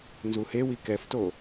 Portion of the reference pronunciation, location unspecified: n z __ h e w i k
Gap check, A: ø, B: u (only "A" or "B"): B